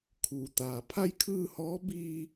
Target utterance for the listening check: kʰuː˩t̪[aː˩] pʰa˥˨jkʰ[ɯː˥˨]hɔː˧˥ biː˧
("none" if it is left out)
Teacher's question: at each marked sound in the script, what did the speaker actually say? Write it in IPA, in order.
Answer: aː˩, ɯː˥˨

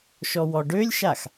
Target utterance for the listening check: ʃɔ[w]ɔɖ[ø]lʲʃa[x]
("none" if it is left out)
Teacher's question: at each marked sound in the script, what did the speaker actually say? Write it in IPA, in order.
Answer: w, ø, x

